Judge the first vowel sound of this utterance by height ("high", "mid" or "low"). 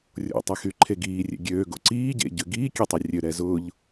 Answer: mid